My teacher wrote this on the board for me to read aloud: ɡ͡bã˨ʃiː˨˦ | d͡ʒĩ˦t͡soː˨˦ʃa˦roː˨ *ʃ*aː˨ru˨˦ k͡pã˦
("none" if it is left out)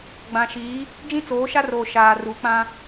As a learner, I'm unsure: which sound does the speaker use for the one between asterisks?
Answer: ʃ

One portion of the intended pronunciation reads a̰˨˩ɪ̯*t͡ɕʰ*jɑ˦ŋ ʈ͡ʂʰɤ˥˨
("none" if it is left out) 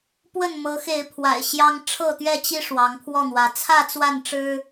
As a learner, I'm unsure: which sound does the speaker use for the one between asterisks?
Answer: ɕ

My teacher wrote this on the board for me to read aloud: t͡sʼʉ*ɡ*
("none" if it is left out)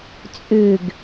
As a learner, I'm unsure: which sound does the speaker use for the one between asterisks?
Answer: ɡ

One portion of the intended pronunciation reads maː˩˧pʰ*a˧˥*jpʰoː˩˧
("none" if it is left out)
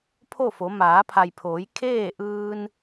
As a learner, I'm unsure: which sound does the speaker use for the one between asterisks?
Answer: a˩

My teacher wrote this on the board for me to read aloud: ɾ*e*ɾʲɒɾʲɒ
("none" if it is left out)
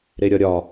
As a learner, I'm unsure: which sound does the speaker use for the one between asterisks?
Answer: e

